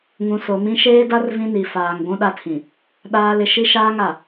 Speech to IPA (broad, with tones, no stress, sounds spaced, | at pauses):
ŋ ũ˨ s o˨ m ĩ˦ ʃ eː˦ d a˦ r v ĩ˦ n i˨ f aː˨ ŋ ɡʷ ũ˦ ɗ a˦ tʰ ĩ˨ | ɗ aː˦ l ɪ˦ ʃ i˦ ʃ aː˦ ŋ a˨